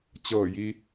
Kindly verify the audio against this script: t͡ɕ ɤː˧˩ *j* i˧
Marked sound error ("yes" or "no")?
no